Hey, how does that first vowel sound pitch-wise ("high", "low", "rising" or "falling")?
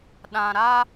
low